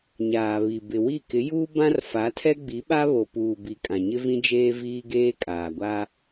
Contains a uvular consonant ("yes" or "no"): no